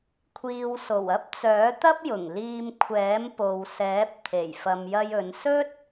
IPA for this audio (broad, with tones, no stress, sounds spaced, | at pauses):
kʷʰ iː˨ w s o˨˩ w ɐ˥ p̚ t͡s œː˨˥ t̪ ɐ˥ p̚ j ʊ˨˩ ŋ l iː˧ m kʷʰ ɛː˨˥ m p o˨ w s ɛː˨˥ p̚ t̪ʰ e˨˩ j f ɐ˨ m j ɐ˧ j ɵ˨˧ n s ɵ˥ t̚